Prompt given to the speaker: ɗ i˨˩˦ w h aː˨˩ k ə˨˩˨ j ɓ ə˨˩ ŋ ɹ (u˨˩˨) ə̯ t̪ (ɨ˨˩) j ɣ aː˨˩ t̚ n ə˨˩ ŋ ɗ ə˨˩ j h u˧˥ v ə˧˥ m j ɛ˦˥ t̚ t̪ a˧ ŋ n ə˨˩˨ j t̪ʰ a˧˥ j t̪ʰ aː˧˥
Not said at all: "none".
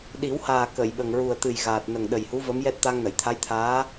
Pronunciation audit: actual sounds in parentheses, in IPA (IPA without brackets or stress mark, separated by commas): u˨˩, ɨ˨˩